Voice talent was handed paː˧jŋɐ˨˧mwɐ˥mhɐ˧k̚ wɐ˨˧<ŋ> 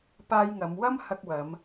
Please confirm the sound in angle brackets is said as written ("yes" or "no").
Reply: no